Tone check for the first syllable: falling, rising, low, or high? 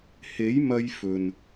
rising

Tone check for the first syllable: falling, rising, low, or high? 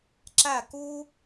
falling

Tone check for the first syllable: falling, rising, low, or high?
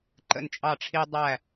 falling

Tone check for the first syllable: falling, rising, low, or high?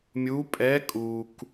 rising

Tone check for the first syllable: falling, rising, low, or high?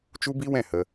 high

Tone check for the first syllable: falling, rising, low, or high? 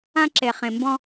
high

